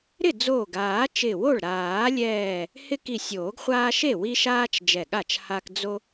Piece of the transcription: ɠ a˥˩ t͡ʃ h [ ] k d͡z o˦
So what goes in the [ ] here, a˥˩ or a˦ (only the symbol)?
a˦